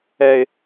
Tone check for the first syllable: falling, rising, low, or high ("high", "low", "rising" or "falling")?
low